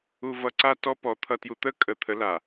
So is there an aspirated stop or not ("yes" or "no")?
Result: yes